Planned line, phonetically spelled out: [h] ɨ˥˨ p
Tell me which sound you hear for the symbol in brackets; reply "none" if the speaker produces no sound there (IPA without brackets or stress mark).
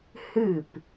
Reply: h